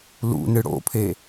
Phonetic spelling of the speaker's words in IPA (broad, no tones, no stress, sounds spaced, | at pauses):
l ṵ n ɨ ɽ o̰ pʰ e